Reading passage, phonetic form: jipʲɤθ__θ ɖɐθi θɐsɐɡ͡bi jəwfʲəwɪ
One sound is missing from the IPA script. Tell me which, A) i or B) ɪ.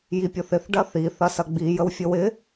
B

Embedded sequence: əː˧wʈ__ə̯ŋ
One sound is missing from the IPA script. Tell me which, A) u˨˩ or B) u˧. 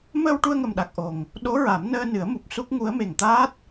B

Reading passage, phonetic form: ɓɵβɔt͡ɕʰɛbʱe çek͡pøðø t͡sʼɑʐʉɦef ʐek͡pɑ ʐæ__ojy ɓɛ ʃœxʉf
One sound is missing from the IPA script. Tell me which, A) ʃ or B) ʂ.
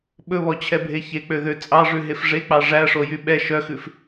B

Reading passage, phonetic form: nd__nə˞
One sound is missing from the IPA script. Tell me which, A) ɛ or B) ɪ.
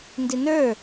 B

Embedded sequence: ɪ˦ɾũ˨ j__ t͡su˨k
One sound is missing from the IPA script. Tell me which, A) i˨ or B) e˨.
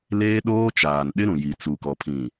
A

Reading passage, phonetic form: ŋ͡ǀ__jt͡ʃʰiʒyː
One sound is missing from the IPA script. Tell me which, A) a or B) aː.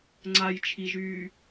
A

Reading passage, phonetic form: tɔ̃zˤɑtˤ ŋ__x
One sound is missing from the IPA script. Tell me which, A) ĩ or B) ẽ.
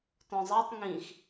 A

